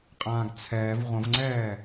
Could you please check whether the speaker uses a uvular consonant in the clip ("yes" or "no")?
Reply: yes